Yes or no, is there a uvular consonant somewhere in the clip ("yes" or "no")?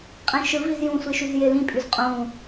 yes